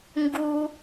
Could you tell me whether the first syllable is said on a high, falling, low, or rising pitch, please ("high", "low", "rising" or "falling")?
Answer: low